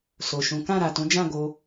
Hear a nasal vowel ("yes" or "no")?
yes